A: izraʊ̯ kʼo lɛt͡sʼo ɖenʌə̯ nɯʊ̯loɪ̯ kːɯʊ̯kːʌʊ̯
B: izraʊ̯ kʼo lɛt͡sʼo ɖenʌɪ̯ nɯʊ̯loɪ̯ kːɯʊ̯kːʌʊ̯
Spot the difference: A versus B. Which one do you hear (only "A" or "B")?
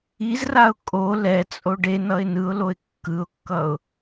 B